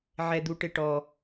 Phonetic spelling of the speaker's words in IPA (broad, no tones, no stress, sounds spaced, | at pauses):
ʕ ɛ d̪ u ʈ ɪ ʈ ɔ